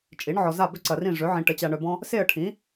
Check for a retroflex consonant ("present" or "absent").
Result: present